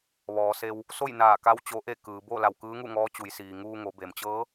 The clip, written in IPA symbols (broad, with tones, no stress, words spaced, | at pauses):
ʋɔː˩˧se˧w | so˥˨j naː˧˩ka˧˥w t͡ɕo˧˥ʔe˥˨ kɯː˩˧ bo˥˨ la˧˩wkɯː˧˥ŋu˥˨ŋɔː˧˥ t͡ɕu˩˧jsiː˩ ŋuː˧ŋo˩˧ be˩mt͡ɕɤː˧˥